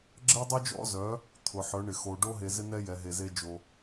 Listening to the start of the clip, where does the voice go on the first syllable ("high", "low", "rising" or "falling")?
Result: high